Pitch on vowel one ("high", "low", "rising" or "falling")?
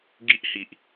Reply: high